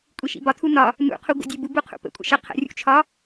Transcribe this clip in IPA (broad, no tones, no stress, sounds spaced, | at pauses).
kʷʼ i ʃ ḭ b ɒ tʰ u n ɒ | n ṵ qʰ u ɡʷ ə̰ dʲ e b u b u qʰ ṵ p ə̰ kʷʼ ə̰ ʃ ə qʰ ə̰ rʲ ṵ t͡ʃʰ ɒ